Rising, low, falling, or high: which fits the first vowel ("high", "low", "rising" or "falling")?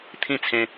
falling